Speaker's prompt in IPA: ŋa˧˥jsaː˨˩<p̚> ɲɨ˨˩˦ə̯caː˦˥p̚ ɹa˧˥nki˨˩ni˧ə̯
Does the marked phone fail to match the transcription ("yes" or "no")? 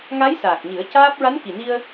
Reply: yes